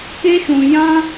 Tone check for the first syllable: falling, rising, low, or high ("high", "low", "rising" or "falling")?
high